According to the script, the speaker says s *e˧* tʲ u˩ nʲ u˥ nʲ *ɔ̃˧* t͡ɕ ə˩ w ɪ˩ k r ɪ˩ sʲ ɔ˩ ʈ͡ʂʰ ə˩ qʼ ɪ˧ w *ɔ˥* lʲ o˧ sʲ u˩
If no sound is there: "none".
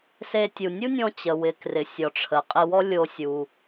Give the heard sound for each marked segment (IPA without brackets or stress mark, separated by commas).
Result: e˧, ɔ̃˧, ɔ˥